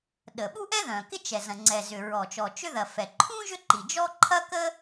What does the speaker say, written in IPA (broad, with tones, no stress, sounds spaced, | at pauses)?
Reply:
ɗ ə˩ ɓ u˥ ʔ ɛ˥ ð œ̃˩ k ɪ˥ t͡ʃ ɛ˩ z ɐ̃˩ ŋ͡ǀ ɛ˩ z ʏ˩ ɹ ɔ˩ t͡ʃ ɔ˩ t͡ʃ ʏ˥ ð ɐ˩ f ɛ˩ ǃʰ ũ˥ ʒ ʏ˥ ǃ i˩ d͡ʒ ɔ˥ ǃʰ ɐ˥ k ə˥